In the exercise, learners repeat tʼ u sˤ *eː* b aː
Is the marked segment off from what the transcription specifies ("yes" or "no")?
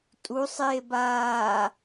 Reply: no